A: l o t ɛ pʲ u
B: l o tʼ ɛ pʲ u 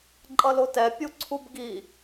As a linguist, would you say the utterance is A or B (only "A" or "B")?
A